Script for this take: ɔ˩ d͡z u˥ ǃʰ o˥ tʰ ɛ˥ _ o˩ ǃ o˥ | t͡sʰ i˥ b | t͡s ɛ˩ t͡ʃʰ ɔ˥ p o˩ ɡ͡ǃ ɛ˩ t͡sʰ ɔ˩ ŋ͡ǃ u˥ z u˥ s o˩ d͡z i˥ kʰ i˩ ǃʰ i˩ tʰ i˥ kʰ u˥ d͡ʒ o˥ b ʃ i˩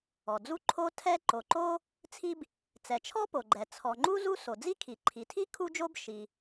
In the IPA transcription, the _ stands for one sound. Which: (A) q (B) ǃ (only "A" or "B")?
B